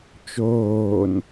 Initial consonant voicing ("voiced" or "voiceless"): voiceless